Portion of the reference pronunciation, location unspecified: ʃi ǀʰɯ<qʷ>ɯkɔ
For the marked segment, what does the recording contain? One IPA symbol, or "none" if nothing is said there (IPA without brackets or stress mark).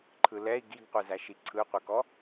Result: qʷ